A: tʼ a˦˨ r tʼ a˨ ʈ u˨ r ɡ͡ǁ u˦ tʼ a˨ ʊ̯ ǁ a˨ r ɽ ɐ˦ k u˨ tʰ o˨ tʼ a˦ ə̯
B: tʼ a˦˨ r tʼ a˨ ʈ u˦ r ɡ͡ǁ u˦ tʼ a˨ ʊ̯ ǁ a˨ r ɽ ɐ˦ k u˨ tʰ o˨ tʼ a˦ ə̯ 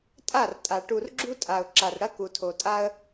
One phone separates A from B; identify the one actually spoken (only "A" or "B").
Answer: A